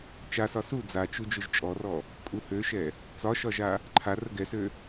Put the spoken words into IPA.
t͡ʃ a s ɒ s u d͡z a t͡ʃ u d͡ʒ ø ʒ t͡ʃʼ ɔ r ɔ | kʼ u h ø ʃ ɛ | t͡s ɒ ʃ ɒ ʒ a | ǃʰ a r ə ɡ ɛ s ø

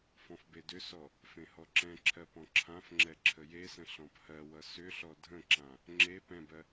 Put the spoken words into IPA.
f ɔ̃ f b e d ʏ s ɔ | f ẽ h ɔ ǁ ɛ̃ ǁʰ ɜ p ɔ̃ ǁʰ ã f ŋ͡ǁ ɛ ǁʰ ə j e s ə̃ ɬ ɔ̃ p h ɜ w ʌ s ʏ ɬ ɔ dʱ ə̃ ǁ ã | ŋ͡ǁ e p ɛ̃ b ɜ

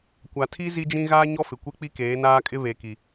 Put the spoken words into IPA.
kʷ a˨ tʰ i˦ z i˦ d͡ʒ ĩ˦ ɣ aː˦ ɲ ɔ˦ f ɪ˨ kʷ e˦ k͡p i˦ k eː˨˦ n aː˦ kʼ ɪ˦ β e˨ k i˨

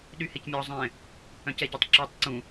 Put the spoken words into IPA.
ɗ y h e c mʲ ɔ zˤ ɛ̃ | œ̃ c ɛ ɟ œ tˤ ǁ ø tˤ ǀ ũ

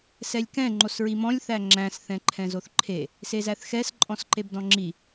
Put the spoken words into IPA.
s ɛ lʲ k ɛ̃ ŋ͡ǃ o s ɹ i m ɔ̃ lʲ θ æ ŋ͡ǁ æ̃ s θ ɛ̃ ǃʰ ɛ̃ z o θ ǃʰ e | s e z æ θ x ɛ s ǃʼ ɔ̃ s ǃ e b d ɔ̃ ŋ͡ǁ i

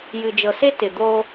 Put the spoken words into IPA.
j ɨ˨ d͡ʒ ɤ˨ s e˦ t ɪ˨ d̪ o˦

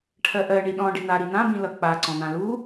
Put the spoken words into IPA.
ʈʰ ɜ ʔ ɜ ɳ i ɗ ɔ̃ ɖ i n̪ a ɾ i n̪ ã b ĩ l ʌ k͡p a ǀ ɔ̃ n̪ ã l u

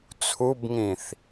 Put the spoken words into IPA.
t͡sʰ u b ŋ ĩ θ

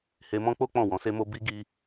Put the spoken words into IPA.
h e˧ m ɔ̃˦ k͡p o˦ k͡p ɔ̃˦˨ w ɔ̃˨˦ s e˦ m o˦ b i˦ ɡ i˧

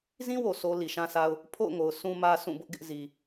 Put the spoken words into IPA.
z ĩ˦ w o˨ sʰ o˨ l i˨ ʃ ã˦ s a˦ ʊ̯ | pʰ o̰˦˨ ʊ̯ ŋ o˨ ʊ̯ sʰ ũ˦ m ä˦ s ũ˦˨ b ʊ˦ ʔ ɡ ɪ˦ ʔ z i˨

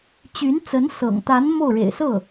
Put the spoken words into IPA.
t͡ɕ y˧˥ n t͡s ə˧˥ n s ɤ̰˨˩ ŋ t̪ a˧˥ n m o˥˩ ʊ̯ ɻ ḛ˨˩ ɪ̯ s ɤ˥˩

